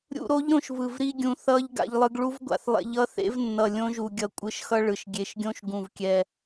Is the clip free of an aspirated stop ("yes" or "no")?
yes